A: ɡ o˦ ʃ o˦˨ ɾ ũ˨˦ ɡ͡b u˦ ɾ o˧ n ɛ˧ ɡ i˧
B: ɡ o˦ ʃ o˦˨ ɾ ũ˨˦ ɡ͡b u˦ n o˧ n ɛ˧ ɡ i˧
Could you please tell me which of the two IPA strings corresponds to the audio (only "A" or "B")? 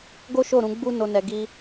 B